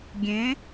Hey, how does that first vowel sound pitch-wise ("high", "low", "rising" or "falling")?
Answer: rising